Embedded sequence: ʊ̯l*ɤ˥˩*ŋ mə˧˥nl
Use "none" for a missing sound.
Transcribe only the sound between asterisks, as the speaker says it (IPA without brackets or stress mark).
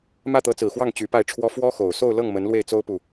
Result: ɤ˥˩